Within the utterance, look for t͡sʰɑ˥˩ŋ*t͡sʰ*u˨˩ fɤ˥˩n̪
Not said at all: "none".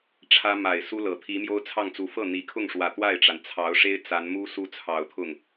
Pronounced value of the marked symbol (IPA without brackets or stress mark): t͡s